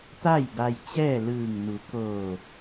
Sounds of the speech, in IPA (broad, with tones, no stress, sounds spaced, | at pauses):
t̪ a˥˨ j b a˧ j t͡ɕ ɛː˥˨ l ɯː˧˩ ŋ n u˩˧ k oː˧˩